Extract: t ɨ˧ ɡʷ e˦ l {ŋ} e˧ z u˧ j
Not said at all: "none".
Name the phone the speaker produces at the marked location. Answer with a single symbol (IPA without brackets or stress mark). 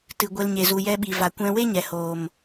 ɲ